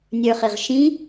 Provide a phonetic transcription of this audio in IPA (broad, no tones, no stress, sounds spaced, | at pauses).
nʲ ə˞ χ ɪ ʁ ʃ ĩ